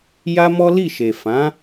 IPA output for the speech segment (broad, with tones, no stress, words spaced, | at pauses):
ja˦mɔ˦ li˦˨ʃe˨ fã˨˦